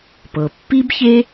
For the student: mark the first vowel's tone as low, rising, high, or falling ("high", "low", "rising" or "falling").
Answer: low